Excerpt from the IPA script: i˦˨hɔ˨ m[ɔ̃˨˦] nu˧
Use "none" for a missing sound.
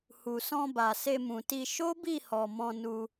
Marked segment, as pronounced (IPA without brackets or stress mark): ɔ̃˧